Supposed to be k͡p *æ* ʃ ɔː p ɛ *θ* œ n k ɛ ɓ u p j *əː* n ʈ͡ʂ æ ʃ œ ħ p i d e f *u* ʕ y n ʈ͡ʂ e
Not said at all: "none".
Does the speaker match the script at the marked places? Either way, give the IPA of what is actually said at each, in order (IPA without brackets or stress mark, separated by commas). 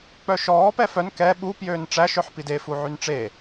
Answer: œ, f, øː, u